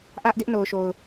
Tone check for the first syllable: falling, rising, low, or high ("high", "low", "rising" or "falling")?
high